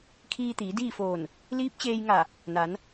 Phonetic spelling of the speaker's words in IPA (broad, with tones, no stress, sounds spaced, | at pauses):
kʰ iː˧ t̪ iː˩˧ d iː˥˨ f oː˧˩ n | l iː˧˥ p̚ t͡ɕ eː˧ j ŋ a˧˩ | n a˩˧ n